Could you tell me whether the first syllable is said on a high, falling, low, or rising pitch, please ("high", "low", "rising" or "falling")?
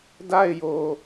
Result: falling